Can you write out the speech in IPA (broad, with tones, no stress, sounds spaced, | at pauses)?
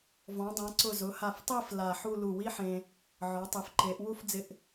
v ɔ̃˩˧ dˤ ã˩˧ ǀ ʊ˧˩ z ʊ˩˧ h a˧˩ f tˤ i˥˧ f l a˧˩ ħ u˥˧ l u˧˩ w i˥ ħ ẽ˧ | ʕ ɔ˩˧ tˤ e˩˧ f ǃ e˩˧ ʔ w u˥˧ f d͡z ɪ˧ ʔ